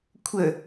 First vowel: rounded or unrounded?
unrounded